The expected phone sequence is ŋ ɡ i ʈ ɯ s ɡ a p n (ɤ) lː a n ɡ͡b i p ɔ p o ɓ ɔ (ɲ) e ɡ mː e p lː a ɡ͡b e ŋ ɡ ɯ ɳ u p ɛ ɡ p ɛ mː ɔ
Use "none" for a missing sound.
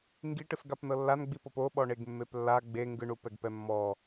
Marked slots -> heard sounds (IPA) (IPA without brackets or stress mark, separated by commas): ɤ, ɳ